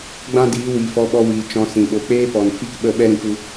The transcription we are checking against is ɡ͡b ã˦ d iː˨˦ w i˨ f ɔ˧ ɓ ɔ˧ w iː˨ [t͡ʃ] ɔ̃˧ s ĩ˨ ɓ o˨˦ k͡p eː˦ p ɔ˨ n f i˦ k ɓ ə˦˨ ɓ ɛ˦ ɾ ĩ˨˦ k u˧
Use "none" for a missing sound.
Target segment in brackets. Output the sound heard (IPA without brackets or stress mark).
t͡ʃ